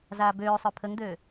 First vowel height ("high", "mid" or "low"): low